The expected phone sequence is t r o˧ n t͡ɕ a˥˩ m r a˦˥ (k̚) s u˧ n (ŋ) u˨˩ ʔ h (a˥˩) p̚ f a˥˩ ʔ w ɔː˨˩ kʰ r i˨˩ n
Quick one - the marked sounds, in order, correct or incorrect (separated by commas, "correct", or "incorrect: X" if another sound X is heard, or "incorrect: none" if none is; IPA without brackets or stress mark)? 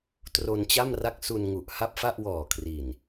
correct, correct, correct